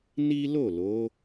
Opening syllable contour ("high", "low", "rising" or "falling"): high